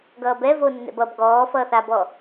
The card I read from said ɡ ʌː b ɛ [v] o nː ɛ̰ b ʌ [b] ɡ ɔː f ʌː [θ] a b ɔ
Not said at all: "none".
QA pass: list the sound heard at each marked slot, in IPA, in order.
v, b, θ

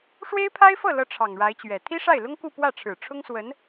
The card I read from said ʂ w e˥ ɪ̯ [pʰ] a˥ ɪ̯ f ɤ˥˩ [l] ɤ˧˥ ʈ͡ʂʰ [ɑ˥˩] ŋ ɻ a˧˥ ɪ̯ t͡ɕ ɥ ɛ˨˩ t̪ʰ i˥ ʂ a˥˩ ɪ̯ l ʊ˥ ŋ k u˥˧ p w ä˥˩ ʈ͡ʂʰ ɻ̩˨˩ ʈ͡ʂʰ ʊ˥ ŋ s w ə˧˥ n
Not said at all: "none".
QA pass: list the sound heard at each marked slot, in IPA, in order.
pʰ, l, ɑ˨˩

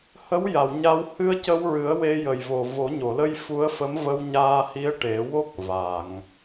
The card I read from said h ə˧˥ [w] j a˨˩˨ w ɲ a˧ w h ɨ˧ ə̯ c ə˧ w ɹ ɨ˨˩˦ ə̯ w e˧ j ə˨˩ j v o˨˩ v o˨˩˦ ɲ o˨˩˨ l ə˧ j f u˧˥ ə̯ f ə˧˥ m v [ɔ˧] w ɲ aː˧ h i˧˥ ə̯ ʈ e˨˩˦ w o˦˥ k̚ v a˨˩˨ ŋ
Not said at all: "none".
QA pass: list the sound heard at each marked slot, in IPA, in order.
w, ə˧

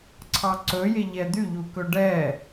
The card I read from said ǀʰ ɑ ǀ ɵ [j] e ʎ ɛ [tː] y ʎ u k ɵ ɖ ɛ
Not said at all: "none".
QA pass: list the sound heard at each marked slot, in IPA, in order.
j, d̪

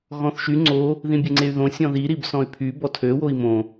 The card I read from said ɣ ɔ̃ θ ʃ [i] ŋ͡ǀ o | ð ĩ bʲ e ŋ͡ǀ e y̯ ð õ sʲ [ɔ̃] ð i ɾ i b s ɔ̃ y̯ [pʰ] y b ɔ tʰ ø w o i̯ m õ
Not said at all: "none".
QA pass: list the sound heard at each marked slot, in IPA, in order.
y, ɔ̃, pʰ

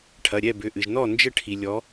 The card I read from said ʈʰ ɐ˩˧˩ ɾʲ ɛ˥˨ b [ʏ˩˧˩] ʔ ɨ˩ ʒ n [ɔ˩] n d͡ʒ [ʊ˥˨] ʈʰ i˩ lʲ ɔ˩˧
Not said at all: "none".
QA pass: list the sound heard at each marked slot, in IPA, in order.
ʏ˩˧˩, ɔ˥˨, ə˥˨

